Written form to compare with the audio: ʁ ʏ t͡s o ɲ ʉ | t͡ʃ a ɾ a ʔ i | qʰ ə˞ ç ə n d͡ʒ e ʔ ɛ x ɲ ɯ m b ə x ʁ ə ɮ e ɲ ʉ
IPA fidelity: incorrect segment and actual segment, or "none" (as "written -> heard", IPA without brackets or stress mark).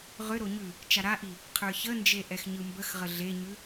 t͡s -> ɾ